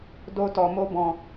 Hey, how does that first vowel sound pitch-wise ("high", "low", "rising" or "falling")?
high